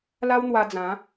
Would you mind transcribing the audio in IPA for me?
l a˦ w n̪ w a˧ d͡z ã˨˦

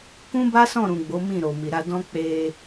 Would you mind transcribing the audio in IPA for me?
k ũ˦ b a˦ s ɔ̃˦˨ ɾ ũ˨ ɡ͡b o˨˦ m ĩ˦˨ ɾ o˨ m i˨ ɾ a˧ d ɔ̃˦ k͡p e˧

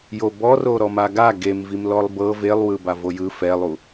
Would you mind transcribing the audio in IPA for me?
j o b ɔ r o ɾ ɔ m a ɡ a ɡ e m v i m l ɔ lˠ b ɤ v e lˠ w ɯ b a v o j ɯ f ɛ lˠ u

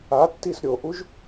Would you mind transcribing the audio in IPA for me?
a tː i s ɾʲ o ʔ u ʒ

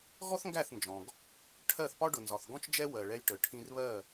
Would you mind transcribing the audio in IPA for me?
ɣ ɔ˥ θ ŋ ɡ æ˥˩ θ n d͡ʒ ɔ̃˩ ɡ | ʈʰ ɜ˥˩ θ p ɒ˥ ɖ ʊ˩ n z ɒ˩ θ ɡ ɔ̃˥ t͡ʃ d͡ʒ ɛ˥ w ɜ˩ ɭ ɛ˧ j ʈ ə˩ ʈʰ ĩ˧ r β ɜ˥˩

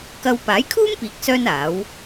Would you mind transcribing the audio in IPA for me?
k ɐ˥ w p aː˨˥ j kʰ uː˥ m p iː˨˥ k̚ s œː˧ n aː˨˥ w

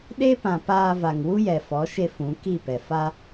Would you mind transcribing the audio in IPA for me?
ɗ e˦ p ã˨ p aː˧ v a˨ ŋ w u˦ j ɛ˨ f ɔ˨˦ ʃ e˧ f ũ˨˦ k i˦˨ p ɛ˨ f a˧

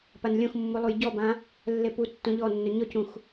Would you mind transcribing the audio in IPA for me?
p a n lʲ õ x mː u lˠ u j ɟ ɔ b ã | lː e p u tː õ ʎ ɔ nː ɵ ɲ ɔ c ũ x

